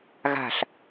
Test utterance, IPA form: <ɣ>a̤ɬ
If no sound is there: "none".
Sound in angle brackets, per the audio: ɣ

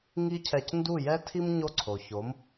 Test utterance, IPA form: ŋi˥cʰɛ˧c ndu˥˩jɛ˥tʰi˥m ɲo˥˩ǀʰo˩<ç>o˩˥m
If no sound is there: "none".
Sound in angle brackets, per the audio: ç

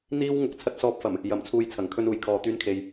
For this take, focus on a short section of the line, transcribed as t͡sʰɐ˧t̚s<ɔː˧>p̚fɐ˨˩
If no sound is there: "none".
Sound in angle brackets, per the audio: ɔː˧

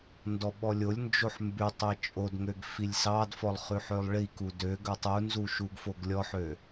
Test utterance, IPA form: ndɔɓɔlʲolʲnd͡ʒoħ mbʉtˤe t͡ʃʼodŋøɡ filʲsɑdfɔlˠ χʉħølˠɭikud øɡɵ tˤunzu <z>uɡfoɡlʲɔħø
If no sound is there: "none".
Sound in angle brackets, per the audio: ʃ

